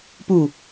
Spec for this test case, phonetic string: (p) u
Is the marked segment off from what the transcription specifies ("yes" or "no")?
no